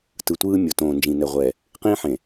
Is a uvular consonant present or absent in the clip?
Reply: present